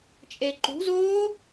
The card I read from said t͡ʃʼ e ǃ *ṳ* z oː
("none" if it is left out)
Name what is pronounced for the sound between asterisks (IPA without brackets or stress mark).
ṳ